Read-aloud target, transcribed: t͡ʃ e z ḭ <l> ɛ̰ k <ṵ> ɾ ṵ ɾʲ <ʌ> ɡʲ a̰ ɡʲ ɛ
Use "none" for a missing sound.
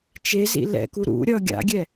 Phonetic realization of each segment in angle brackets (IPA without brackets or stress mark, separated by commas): l, u, ʌ